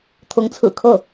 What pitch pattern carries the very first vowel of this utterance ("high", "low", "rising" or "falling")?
rising